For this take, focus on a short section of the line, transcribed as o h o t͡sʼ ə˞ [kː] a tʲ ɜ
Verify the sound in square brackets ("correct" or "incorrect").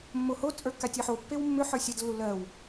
correct